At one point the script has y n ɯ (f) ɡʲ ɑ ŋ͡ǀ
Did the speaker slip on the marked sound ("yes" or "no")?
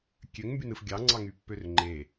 no